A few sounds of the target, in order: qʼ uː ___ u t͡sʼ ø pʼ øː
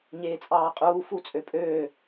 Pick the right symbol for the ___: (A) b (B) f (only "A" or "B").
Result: B